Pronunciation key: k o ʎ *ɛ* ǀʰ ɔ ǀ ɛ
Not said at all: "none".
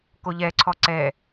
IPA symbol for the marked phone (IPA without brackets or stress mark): ɛ